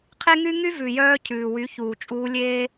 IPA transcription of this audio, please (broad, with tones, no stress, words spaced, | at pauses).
qʰe˦ŋy˦ ŋy˦vʉ˨jœː˧ cʰʉː˨wy˨˦çuː˨ t͡ʃʼuː˧lʲeː˦